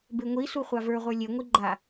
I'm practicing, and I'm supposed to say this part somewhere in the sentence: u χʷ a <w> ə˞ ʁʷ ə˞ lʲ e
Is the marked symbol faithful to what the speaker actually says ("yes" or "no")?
no